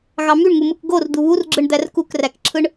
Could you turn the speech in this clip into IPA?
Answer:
ɣ ɑ m y ɳ ŋ u m ɯ k ɡ o r d̪ u β u r ɡ͡ǁ ɯ ɳ d̪ æ r k u k r æ k ǁʰ ɯ ɳ

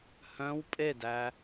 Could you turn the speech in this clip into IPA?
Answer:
h œ̃ w pʼ e d æ

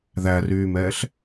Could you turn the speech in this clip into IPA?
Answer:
ð æ r yː m ɛː ɬ

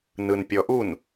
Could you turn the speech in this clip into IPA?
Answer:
n ɯ n pʲ ɔ ʔ u n

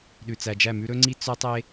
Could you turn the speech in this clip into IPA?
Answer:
ɗ ʉ˨ t͡s æ˨ d͡ʒ æ˦˨ m ʉ˦ ɾ ɵ˦ ŋ͡ǀ i˦ t͡s œ˦ tˤ e˦

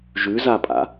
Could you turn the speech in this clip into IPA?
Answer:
ʒ ʉ z a pʼ a̰

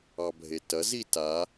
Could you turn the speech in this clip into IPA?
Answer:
ɑ bʱ e t ɐ z i t a

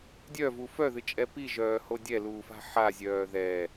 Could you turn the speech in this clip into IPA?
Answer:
dʲ œ v u f œ ð ɨ t͡ʃʼ ɛ p i ʒ œː h o dʲ ɛ l uː f a̤ ħ a zʲ œː ð ɛ

